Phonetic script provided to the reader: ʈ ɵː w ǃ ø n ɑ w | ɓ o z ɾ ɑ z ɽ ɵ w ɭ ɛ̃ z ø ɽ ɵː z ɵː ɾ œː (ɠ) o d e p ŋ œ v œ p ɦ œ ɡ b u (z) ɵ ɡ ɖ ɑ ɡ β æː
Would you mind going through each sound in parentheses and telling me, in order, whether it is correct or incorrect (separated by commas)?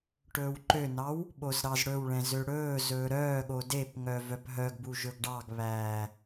correct, incorrect